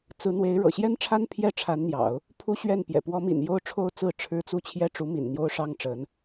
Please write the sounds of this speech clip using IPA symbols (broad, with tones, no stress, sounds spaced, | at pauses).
t͡s ɹ̩˧˥ n̪ w e˧˥ ɪ̯ ɻ ɤ̰˨˩ ɕ j ɛ˥ n ʈ͡ʂʰ a˥ n pʰ j ɛ˥˩ ʈ͡ʂʰ a˧˥ n n̪ j ɑ̰˨˩˦ ʊ̯ | pʰ u˥ ɕ ɥ ɛ˥˩ n p j ɛ̰˨˩ p w ɔ˧˥ m ḭ˨˩ n j o˥˧ ʊ̯ ʈ͡ʂʰ o˥˧ ʊ̯ t͡s ɹ̩˥˩ ʈ͡ʂʰ ɻ̩˥ t͡s u˥ t͡ɕʰ j ɛ˥ ʈ͡ʂ u˧˥ m ḭ˨˩ n n̪ j o˥ ʊ̯ ʂ ɑ˥ ŋ ʈ͡ʂ ə˧˥ n